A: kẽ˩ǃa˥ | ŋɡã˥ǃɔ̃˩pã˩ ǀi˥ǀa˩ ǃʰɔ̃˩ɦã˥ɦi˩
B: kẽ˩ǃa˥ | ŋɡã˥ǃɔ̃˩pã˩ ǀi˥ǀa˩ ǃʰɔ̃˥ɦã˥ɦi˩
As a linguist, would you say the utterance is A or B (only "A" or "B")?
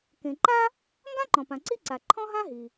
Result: B